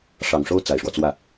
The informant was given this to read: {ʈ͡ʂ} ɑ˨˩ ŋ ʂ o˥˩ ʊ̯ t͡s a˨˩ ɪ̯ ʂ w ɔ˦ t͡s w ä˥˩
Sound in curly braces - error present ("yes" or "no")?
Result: yes